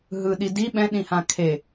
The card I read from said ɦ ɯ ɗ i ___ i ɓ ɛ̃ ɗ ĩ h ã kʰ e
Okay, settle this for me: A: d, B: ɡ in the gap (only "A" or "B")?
A